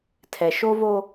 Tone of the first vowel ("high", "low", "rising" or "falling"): low